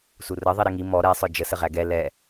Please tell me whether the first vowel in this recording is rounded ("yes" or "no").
yes